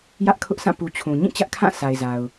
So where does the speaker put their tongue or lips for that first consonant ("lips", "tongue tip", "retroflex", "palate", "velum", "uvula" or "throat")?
palate